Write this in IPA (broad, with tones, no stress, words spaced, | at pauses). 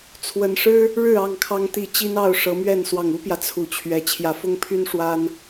t͡sʰwə˨˩n ʂɻ̩˦ | ɻɻ̩˥˨ ɑ˥˨ŋkʰɑ˦ŋ t̪i˨˩ t͡ɕi˦nɑ˥˨ʊ̯ ʂɤ˨˦mɥɛ˥˨n swɑ˨˩ŋu˦pjä˨ t͡sʰu˨˦ t͡ɕʰɥɛ˨˩ t͡ɕʰjä˨˦fʊ˦ŋpʰy˦n ʂwa˦n